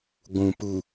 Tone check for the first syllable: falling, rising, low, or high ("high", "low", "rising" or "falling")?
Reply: low